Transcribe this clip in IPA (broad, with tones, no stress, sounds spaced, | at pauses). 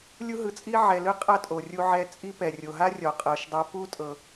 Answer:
lʲ u˥ ɦ ɯ˧ t͡sʼ i˥ ʕ ɛ˧ l ɯ˥ qʼ a˥ tʼ o˩ rʲ u˧ ʕ ɛ˧ t͡sʼ i˥ p ɛ˩ rʲ o˩ ɦ a˥ rʲ ɔ˩ qʼ ɤ˩ ʃ dˤ a˧ p u˥ tʼ ɤ˩